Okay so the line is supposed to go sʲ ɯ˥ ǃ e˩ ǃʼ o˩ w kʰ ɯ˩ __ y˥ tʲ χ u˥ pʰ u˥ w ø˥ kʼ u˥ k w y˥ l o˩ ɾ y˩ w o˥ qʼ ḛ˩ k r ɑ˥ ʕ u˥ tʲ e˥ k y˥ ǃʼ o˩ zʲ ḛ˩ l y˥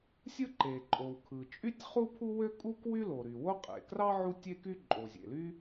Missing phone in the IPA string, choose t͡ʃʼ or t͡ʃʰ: t͡ʃʼ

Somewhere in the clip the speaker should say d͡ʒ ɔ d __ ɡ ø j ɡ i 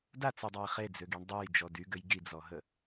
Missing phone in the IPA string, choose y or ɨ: y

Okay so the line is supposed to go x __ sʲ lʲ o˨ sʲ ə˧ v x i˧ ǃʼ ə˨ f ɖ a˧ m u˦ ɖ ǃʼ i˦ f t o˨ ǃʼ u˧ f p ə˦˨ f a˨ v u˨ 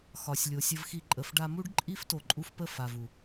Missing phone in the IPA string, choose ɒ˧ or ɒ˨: ɒ˨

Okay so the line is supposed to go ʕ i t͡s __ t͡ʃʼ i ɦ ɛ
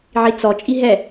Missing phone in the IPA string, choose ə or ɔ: ɔ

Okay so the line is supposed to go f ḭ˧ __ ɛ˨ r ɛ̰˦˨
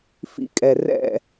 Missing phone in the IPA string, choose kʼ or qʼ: kʼ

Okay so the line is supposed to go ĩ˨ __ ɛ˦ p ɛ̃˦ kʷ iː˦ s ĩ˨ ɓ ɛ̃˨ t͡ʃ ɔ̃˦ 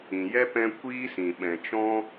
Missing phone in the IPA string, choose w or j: j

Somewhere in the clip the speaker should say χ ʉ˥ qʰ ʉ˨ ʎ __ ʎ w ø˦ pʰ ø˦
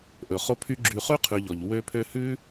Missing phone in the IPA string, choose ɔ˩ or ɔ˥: ɔ˩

